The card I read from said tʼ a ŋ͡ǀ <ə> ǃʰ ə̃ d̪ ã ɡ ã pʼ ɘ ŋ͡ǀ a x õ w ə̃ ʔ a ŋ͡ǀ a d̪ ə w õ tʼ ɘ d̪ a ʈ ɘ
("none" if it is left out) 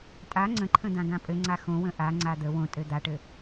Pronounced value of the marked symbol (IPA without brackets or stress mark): ə̃